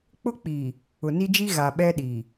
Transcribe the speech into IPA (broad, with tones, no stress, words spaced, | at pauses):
k͡pʊ˦k͡pi˨ | ʊ˨ni˦d͡ʒi˦ ɣa˨ ɓɛ˦ɗi˨